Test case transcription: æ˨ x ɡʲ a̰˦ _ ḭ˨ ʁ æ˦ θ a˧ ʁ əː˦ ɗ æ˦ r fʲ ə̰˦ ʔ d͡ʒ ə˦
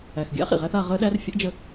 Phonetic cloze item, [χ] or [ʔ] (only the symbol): χ